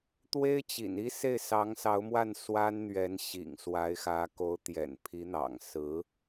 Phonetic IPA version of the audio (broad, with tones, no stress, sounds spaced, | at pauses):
t̪ w e˥ ɪ̯ t͡ɕ ḭ˨˩ n i˥ s e˥˩ ɪ̯ s ɑ˧˥ ŋ s ɑ˧˥ ʊ̯ m w a˥˩ n s w a˥ n n̪ ɥ ɛ˧˥ n ɕ ḭ˨˩ ŋ s w a˧˥ ɪ̯ x ä˧˥ k o˧˥ ʊ̯ t̪ j ɛ̰˨˩ n pʰ i˧˥ n̪ ɑ̰˨˩ ŋ s ɹ̩˧˥